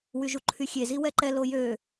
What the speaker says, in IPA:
wyʒuǃʰyxʲe ziwɛǃɛ lojø

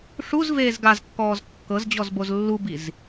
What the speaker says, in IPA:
ʂuzveːz ɡazkːɔːz kːɤzd͡ʑɔzboz lːubiz

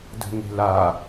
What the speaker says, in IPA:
də̤ŋ e̤la

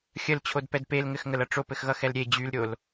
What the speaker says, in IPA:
xʲəlt͡ɕʰodpɛd pelŋɘxŋəlʌ ʈ͡ʂopɘxɣʌxɛl ɾʲe d͡ʑylɾʲol

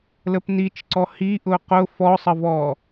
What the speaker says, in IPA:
ləpnit͡ʃǀɔ hi ʔʊqʊ fɔsˤəvɔ

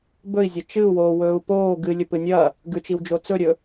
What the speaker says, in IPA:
bɵi̯zʲɐ t͡ʃɨu̯woːwɵːu̯ poː ɡɨlʲɵpɨ nʲɐ | ɡʉt͡ʃiwd͡ʒo t͡sɵɾʲɵ

